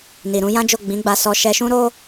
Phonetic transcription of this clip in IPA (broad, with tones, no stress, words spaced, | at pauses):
ni˨ɾũ˧jã˦d͡ʒo˦˨ ɡ͡bĩ˨˦ɡ͡ba˧sɔ˧ ʃɛ˧ʃũ˦ɾo˦